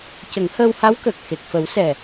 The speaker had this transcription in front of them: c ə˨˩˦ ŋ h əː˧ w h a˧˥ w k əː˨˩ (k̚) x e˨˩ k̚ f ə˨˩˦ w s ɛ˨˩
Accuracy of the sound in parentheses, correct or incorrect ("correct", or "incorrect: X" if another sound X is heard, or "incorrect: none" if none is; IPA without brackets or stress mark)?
correct